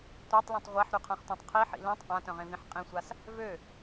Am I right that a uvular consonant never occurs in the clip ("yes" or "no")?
no